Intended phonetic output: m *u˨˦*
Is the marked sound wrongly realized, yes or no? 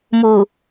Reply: yes